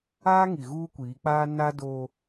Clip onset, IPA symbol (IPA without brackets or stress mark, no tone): aː